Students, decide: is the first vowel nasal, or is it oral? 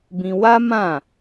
nasal